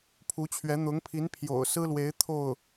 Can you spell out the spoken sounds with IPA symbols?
pʰ u˧˥ t͡ɕʰ ɥ ɛ˧˥ n̪ ʊ˧˥ ŋ pʰ i˧˥ n pʰ j o̰˨˩ ʊ̯ s ɹ̩˥ l w e˧˥ ɪ̯ t̪ʰ o˥˩ ʊ̯

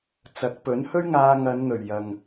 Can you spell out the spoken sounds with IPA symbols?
t͡s ɐ˨˥ k̚ p ɵ˨˥ n h ɵ˥ ɥ ŋ aː˧ ŋ ɐ˨˧ n n̪ ɵ˨˩ ɥ j ɐ˨ ŋ

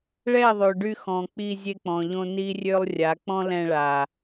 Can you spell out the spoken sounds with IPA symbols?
ɭ ɛ˦˨ ðˤ ø˨ ɖ y˧ x ɔ̃˨ k͡p i˧ zʲ e˧ k͡p ɔ̃˨ ʎ õ˧ n i˦ rʲ ø˦ lˠ rʲ a˨˦ k͡p ɔ̃˦ l ɛ̃˧ ɭ a˨

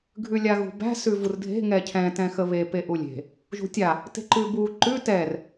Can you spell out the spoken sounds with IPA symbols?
ɡʱ ʉ lʲ a ɣ ṳ b æ̤ s ʉ v u r dʱ e̤ ŋ ɛ cʰ ɛ̃ t ɛ̃ x ə β e p e ʔ u lʲ e̤ | ʒ ṳ tʲ a | t e̤ ǃ ʉ b u ǃ ʉ t ɛ r

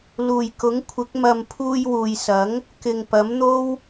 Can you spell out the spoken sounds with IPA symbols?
l uː˨˩ j k ʊ˨˥ ŋ kʷʰ ɪ˨˥ k̚ m ɐ˨ m pʰ uː˧ j w uː˨ j s ɐ˨˥ ŋ | k ɪ˨ ŋ p ɐ˨˥ m n̪ o˥ w

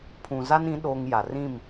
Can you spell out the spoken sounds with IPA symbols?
pʰ ũ˨ z a˦ n ĩ˨˦ ɗ oː˦ ŋ j a˨ r ĩ˦˨ m

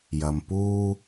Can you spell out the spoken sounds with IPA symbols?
j ɐ˨ m p uː˧

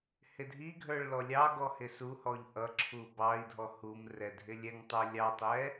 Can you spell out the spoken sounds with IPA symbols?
h ɪ dʱ i ɡʱ ə˞ ɭ l ɔ lʲ ɑ ɡ ɔ h ɪ s u h ɔ ʎ ʔ ʌ ǁʰ u b ɑ i̯ dʱ ɔ h u m r ɛ dʱ ɪ lʲ ɛ ŋ tˤ ə˞ lʲ ɑ tˤ ɛ

